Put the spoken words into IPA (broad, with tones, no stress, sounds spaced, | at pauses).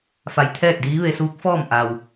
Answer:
f a˧ j t̪ʰ ɛː˥˨ k̚ d iː˧˥ ʋ e˧ s uː˧˥ k̚ f ɔː˥˨ m ʔ a˩ w